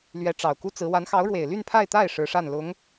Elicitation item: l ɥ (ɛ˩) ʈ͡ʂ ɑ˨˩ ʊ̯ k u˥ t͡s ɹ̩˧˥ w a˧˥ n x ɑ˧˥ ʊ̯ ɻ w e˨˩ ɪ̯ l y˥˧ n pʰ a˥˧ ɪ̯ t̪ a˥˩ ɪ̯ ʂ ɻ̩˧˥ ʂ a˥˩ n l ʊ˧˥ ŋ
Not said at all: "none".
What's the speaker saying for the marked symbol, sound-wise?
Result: ɛ˧˥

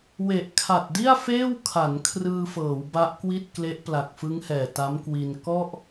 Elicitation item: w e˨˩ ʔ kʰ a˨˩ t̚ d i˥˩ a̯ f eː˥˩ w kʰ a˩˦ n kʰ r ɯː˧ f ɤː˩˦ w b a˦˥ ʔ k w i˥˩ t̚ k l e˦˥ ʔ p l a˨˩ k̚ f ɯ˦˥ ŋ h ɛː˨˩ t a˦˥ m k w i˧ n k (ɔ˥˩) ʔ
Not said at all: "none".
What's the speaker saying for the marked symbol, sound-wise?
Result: ɔ˥˩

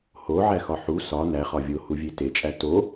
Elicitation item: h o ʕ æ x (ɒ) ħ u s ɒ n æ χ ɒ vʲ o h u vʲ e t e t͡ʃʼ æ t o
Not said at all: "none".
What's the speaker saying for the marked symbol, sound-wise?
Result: ɒ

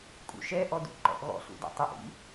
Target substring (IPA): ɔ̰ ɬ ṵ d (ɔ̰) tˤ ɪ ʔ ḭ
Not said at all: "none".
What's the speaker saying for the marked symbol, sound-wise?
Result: ɔ̰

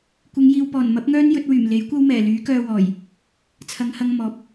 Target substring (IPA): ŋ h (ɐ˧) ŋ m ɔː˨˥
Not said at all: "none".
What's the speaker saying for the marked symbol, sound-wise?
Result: ɐ˧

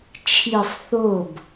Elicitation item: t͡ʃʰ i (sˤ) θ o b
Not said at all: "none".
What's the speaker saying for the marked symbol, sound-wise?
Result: sˤ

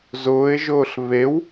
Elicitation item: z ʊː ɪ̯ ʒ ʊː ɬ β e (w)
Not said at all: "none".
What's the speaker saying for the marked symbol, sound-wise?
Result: w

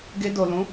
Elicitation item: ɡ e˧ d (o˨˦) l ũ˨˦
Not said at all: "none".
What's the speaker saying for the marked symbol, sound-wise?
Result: o˨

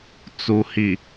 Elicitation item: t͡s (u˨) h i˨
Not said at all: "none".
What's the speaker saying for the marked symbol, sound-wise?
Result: u˨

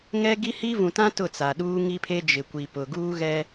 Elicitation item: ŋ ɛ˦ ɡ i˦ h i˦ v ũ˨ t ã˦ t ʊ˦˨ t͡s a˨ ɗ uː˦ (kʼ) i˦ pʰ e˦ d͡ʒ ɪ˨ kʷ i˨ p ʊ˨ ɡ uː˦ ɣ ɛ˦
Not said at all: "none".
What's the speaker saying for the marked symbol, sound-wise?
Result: ŋ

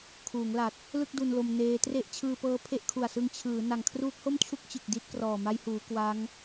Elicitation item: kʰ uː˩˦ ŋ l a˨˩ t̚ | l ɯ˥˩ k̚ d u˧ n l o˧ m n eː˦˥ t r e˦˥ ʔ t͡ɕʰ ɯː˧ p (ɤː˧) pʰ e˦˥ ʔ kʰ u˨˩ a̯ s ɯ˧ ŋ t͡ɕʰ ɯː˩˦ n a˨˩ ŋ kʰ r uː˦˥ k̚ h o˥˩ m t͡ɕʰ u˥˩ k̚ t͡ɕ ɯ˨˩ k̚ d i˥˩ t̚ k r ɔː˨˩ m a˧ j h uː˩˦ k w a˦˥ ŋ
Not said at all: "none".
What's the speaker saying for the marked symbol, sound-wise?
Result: ɤː˦˥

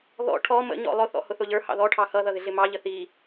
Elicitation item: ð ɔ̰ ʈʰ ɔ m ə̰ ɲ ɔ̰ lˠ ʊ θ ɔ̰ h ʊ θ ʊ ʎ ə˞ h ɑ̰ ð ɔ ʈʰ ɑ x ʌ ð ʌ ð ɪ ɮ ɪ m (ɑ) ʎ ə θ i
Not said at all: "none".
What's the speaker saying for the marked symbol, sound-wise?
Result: ɑ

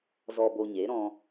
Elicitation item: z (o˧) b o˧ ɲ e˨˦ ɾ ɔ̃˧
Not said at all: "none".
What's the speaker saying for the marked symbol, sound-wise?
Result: ɔ˧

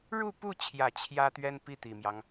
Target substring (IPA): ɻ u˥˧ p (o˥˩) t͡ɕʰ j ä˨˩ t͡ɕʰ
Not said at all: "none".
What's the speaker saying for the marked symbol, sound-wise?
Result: u˥˩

